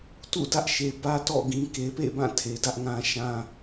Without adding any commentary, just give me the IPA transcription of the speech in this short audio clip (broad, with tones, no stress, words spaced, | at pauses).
tṵ˦˨ dä˦ʔʃe˨ bä˦tɔ̰˦˨ɡĩ˨ ke˨pḛ˦˨bã˦˨ tʰe˨dä˦ʔŋã˦ʃã˦